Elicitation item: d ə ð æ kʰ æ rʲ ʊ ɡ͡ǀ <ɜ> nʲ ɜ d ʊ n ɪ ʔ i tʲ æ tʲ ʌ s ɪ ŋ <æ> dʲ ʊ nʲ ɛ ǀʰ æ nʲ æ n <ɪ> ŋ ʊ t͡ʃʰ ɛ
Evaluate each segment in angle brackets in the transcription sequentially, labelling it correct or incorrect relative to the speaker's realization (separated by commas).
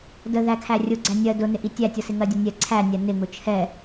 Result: incorrect, incorrect, correct